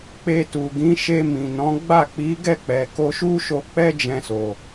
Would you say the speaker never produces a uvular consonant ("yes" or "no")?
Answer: yes